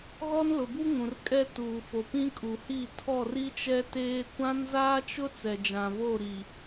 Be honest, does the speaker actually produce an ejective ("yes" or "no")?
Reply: yes